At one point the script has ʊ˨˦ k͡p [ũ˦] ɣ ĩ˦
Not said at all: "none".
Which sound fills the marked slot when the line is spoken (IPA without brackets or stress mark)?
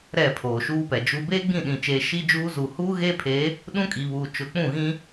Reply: ũ˦˨